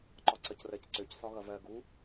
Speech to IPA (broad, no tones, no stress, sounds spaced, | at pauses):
ǃ ɒ ǀ ʌ c r ɜ c ǀ ø c s ɒ ɣ ʌ v ɜ ɡ u